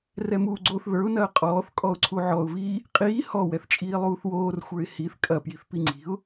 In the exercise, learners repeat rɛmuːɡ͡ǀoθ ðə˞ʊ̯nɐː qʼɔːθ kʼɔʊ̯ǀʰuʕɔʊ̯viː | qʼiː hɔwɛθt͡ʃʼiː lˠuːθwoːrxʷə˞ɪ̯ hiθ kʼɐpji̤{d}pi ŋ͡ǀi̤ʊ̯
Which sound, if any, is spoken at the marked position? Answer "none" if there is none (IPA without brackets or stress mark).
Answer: θ